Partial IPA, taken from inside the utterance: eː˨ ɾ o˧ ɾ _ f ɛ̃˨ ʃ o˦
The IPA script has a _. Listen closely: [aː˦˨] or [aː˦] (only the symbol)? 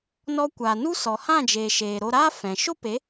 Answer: aː˦